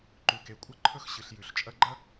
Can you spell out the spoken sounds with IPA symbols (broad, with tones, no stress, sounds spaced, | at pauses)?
ǃ ʉ˨ k e˨ kʷʼ ɐ˦ ǃʰ ɵ˦ x ɕ ɨ˨ ɬ j ʉ˨ ɬ t͡ʃʼ ɐ˦ ɡ͡ǃ ɐ˥